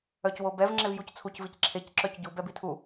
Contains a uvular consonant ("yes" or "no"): no